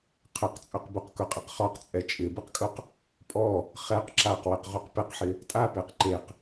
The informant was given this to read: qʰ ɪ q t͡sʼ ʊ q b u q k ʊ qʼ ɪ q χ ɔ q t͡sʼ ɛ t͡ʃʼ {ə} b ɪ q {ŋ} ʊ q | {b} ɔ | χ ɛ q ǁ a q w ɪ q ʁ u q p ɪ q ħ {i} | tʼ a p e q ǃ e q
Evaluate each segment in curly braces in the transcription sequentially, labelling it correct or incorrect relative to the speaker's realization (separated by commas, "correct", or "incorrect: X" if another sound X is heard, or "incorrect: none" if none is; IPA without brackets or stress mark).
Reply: incorrect: ɪ, incorrect: kʼ, incorrect: pʼ, incorrect: ɪ